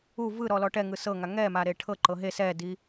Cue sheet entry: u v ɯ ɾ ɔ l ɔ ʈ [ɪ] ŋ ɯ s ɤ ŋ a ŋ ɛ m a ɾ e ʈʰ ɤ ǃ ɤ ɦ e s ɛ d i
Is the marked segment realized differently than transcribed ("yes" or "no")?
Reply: yes